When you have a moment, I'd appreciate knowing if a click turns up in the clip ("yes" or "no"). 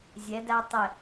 no